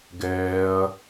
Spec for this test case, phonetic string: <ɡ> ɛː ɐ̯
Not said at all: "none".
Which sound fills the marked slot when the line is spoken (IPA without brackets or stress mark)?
ɡ